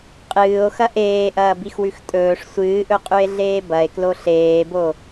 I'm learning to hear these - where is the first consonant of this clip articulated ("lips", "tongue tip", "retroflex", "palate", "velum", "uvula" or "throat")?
uvula